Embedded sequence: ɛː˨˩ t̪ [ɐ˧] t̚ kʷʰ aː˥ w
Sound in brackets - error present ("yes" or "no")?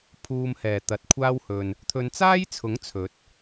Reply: yes